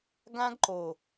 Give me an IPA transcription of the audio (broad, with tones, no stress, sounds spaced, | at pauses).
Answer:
ɡ ã˦ ɡ ǃ o˨